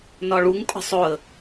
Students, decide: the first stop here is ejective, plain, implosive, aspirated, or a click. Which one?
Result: ejective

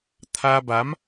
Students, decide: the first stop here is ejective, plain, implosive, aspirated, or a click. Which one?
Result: aspirated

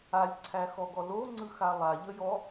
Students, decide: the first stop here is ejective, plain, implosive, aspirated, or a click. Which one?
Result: click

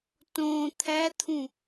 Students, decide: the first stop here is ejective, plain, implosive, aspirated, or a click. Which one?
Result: plain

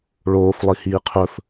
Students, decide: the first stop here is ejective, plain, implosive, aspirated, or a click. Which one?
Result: aspirated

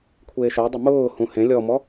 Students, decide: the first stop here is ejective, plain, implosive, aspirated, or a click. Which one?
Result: aspirated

